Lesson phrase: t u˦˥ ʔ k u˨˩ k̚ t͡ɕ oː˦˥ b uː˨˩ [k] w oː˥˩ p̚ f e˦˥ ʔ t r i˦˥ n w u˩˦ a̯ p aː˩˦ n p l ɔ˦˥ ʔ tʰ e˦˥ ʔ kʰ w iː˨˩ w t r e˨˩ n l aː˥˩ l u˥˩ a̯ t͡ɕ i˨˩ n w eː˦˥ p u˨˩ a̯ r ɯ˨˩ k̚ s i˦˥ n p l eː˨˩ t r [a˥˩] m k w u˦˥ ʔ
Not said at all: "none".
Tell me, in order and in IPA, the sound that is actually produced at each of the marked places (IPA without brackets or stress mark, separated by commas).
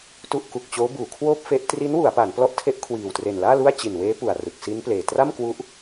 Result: kʰ, a˥˩